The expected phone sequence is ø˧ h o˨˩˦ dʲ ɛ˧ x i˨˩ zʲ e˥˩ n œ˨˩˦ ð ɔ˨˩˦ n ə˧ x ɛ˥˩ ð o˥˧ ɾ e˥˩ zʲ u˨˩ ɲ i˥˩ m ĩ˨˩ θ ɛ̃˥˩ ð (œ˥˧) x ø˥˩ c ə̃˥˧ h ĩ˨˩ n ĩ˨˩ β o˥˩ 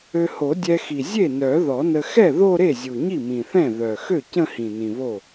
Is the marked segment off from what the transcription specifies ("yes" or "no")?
yes